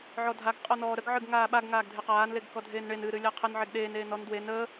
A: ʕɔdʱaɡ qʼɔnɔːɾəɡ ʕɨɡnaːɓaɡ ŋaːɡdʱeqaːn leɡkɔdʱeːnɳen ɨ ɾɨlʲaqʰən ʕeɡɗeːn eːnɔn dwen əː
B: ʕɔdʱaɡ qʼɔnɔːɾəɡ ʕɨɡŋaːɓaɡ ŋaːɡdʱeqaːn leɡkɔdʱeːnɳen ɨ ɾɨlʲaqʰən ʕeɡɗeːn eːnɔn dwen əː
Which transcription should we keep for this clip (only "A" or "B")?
B